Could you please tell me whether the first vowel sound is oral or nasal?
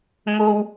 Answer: oral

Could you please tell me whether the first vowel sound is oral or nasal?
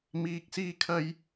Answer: oral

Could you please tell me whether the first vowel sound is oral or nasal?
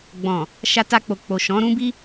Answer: nasal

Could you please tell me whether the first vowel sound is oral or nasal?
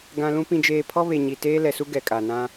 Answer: nasal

